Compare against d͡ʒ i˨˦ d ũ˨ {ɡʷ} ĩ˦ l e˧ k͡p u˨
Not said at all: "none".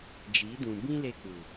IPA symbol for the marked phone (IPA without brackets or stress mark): b